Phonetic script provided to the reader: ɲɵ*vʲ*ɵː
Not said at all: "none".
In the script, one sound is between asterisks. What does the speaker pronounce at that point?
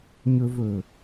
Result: v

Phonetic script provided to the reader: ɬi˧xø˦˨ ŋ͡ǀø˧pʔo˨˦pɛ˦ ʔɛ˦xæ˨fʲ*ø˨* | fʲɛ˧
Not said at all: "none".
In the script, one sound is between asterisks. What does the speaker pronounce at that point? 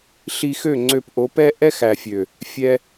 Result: ø˨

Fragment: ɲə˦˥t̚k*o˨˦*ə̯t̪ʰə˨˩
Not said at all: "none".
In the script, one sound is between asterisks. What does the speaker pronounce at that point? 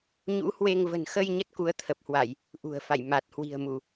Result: u˨˦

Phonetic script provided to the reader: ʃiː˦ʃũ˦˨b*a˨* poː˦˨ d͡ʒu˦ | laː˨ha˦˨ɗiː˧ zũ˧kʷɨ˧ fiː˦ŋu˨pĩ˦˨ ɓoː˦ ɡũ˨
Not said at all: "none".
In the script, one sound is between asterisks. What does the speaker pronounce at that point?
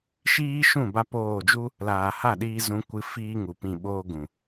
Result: a˧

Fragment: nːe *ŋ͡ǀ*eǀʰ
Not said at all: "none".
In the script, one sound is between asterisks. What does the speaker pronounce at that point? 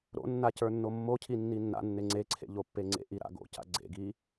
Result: ŋ͡ǀ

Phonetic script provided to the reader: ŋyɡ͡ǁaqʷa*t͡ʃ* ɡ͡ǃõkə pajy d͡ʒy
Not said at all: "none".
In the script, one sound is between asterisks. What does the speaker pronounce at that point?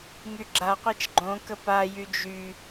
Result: t͡ʃ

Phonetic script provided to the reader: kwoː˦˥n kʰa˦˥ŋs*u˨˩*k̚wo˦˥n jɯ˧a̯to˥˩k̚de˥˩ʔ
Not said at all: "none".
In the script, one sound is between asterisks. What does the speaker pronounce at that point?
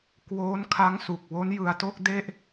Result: u˨˩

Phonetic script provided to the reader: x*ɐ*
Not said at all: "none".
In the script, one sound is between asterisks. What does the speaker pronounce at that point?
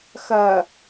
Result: ɐ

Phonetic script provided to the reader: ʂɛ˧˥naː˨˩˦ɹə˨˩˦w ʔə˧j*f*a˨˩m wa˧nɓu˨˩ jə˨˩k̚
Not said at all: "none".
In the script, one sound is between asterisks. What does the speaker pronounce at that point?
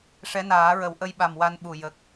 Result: ɓ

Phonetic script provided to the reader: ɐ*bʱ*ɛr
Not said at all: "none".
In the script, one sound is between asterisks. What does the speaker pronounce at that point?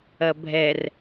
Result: bʱ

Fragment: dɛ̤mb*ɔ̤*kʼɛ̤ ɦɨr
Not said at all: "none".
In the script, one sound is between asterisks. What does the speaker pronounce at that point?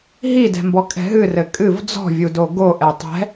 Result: ɔ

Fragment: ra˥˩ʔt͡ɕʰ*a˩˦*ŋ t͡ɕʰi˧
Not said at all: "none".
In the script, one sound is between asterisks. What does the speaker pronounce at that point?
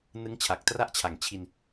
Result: a˨˩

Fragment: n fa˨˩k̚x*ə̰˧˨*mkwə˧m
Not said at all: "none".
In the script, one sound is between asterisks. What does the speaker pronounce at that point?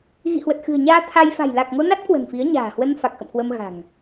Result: ə̰˧˨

